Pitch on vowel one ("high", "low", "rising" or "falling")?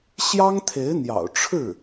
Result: high